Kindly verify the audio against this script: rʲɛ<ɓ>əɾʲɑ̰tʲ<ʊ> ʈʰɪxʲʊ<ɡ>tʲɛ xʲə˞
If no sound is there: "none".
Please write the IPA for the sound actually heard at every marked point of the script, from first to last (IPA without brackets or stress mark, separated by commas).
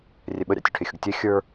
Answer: ɓ, ʊ, ɡ